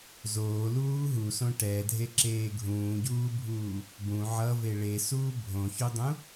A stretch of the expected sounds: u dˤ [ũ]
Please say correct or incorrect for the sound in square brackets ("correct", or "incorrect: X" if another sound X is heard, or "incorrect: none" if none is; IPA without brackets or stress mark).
correct